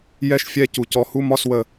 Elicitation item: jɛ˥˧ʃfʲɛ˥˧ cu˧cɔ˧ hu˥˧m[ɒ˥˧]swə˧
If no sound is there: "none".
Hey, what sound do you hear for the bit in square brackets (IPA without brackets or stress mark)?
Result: ɒ˥˧